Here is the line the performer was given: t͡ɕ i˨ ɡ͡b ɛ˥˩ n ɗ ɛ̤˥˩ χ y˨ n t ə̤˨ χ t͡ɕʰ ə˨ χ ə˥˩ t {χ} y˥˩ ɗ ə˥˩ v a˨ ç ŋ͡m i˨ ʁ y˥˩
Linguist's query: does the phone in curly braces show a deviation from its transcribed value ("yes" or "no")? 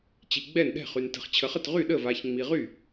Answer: yes